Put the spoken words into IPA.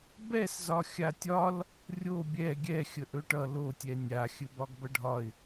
b ɛ s z ɒ xʲ a tʲ ɒ l | rʲ o bʲ ɛ ɡʲ ɛ xʲ ə ʔ ɵ ʈ ʌ l o tʲ ɛ nʲ a xʲ ɘ b ɒ ɡ b ʌ ɖʱ ɒ ɪ̯

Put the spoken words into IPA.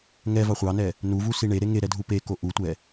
ŋ ɛ v ɑ χʷ ɑ n ɛ | n u v u s i ɳ e ɾ e ŋ e ɾ ɛ dʱ u p e k o ʔ u tʷ ɛ

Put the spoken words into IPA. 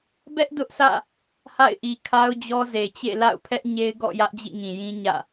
b ɛ˦ ʔ d ʊ˦ ʔ s ä̰˦˨ | h a̰˦˨ ɪ̯ ʔ i˨ kʰ a˦ ʊ̯ d͡ʑ ɔ˦ z e˨ t͡ɕ ḛ˦˨ l a̰˦˨ ʊ̯ pʰ ɛ˦ ʔ ɲ e˦ ɪ̯ ɡ ɔ̰˦˨ j ä˦ ʔ d͡ʑ ḭ˦˨ ŋ ĩ˨ j ĩ˦ ɲ ä̰˦˨

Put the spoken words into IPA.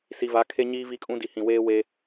s i˨ v a˨˦ kʰ e˦ ɲ iː˦ v i˦ kʼ ũ˦ d i˨ h ĩ˨ w eː˦ w e˦

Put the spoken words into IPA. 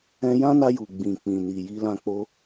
ɛ̃˧ j ã˦ n a˧ j u˨ ɡ͡b ĩ˨ k͡p ĩ˨ n i˨ j i˧ l ã˧ k͡p o˧

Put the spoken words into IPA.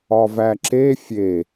ɒ v æ ǁ e fʲ e

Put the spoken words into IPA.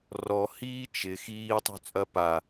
r ɔ h iː t͡ʃ ɪ x iː tˤ ṳ t͡sʼ ɐ p a

